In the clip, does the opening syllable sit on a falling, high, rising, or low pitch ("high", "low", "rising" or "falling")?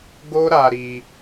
high